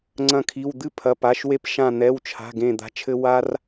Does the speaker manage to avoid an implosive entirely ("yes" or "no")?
yes